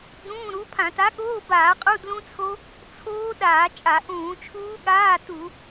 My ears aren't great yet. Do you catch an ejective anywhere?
yes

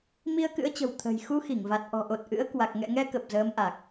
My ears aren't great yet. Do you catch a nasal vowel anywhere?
no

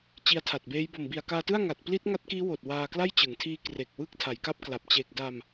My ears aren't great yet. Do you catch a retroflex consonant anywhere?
no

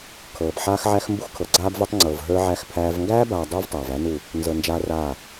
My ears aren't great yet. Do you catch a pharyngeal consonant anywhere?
yes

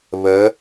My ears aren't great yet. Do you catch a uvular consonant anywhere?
no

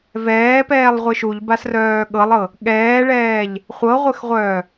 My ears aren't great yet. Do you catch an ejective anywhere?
no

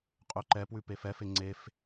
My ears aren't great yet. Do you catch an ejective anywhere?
yes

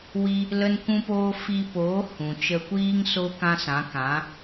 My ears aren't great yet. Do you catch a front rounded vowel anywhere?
no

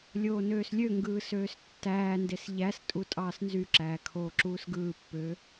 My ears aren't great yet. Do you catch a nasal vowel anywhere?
no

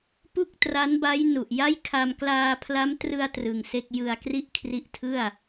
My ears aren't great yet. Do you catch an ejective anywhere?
no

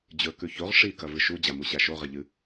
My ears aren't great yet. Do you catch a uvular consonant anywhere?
yes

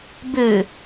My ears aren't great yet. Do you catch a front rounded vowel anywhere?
yes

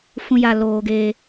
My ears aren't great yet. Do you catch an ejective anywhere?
no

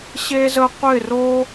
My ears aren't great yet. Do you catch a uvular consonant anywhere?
yes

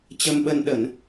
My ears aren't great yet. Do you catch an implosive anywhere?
yes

